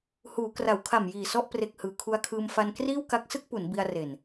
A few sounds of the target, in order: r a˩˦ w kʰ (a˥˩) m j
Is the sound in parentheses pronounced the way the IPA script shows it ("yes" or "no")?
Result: no